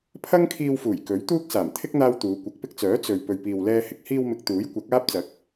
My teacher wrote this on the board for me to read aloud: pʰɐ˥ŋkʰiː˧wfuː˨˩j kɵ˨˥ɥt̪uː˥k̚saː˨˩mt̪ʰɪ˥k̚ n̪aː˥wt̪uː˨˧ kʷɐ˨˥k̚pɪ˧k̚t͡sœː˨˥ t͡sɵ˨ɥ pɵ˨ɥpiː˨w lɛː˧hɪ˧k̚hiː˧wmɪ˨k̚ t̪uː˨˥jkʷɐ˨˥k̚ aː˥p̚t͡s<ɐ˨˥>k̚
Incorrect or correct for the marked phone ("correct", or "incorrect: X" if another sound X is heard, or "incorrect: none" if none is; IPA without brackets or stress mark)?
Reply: correct